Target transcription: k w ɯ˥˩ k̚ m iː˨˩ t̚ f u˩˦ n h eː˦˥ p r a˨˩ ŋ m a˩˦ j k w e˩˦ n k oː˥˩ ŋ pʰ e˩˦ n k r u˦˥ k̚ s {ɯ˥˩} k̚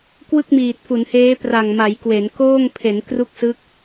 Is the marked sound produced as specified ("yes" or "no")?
no